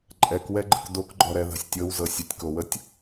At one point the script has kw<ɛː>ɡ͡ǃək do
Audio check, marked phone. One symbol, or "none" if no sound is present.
ɛ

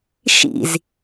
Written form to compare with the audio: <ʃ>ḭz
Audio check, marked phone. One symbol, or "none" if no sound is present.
ʃ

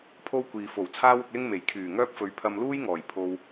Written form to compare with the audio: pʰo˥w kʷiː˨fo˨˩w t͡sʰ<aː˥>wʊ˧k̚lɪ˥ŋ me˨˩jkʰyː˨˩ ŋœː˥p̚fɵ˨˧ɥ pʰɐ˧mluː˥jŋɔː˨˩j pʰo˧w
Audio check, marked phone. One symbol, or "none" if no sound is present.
aː˥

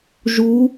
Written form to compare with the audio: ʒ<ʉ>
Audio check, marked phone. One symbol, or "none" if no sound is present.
u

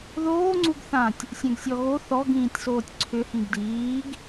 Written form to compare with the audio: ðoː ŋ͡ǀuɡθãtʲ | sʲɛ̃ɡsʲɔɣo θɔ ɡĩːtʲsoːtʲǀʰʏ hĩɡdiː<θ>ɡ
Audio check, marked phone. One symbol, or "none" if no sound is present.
none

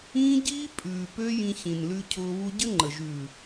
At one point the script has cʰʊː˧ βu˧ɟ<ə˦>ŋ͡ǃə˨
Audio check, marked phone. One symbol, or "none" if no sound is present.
ə˦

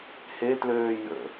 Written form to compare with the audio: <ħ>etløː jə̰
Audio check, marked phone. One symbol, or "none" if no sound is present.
h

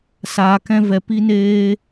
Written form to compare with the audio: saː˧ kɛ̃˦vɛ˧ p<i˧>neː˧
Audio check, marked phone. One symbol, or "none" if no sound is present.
i˧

